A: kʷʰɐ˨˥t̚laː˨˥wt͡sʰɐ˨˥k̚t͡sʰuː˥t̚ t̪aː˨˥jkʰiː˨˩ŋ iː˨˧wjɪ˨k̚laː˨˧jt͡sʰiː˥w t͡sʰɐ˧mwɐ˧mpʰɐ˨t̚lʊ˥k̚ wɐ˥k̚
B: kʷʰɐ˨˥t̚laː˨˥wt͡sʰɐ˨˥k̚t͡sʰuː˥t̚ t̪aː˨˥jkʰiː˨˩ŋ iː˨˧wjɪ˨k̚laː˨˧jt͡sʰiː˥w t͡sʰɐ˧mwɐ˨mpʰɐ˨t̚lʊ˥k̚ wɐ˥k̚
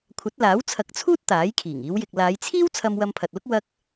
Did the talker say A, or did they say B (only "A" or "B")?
A